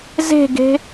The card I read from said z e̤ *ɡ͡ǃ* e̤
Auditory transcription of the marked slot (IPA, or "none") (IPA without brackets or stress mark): ɡ